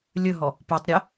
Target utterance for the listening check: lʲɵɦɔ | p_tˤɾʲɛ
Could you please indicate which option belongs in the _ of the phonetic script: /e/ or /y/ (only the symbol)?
y